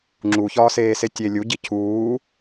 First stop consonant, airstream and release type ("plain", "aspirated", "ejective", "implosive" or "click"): click